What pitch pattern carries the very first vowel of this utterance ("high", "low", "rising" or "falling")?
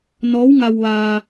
rising